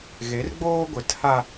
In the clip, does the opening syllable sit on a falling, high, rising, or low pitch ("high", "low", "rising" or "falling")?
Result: rising